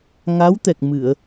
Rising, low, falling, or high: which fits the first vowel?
rising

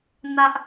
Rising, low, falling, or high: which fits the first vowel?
high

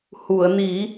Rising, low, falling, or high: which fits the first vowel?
low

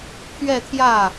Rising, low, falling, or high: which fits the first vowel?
falling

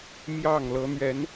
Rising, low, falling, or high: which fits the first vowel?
falling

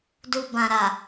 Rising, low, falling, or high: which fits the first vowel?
low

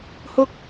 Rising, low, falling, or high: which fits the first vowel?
high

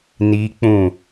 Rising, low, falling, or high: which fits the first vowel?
high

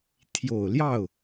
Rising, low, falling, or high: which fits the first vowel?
low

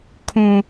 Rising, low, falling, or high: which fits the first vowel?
low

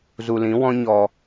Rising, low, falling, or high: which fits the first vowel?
low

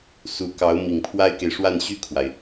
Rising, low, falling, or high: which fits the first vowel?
rising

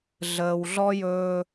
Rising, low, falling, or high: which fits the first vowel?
low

